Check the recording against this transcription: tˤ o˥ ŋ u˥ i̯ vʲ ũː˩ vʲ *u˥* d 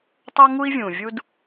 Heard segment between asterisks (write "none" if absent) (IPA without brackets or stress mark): u˥